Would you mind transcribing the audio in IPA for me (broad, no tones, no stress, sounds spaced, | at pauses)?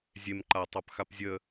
zʲ e m ǃ a tˤ a p x a p zʲ ə